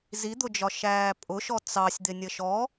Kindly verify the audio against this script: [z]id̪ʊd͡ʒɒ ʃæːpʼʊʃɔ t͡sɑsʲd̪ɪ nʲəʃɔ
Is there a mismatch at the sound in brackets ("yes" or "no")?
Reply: no